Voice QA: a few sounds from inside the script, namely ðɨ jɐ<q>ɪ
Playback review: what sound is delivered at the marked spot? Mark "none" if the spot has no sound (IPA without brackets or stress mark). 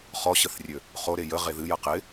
q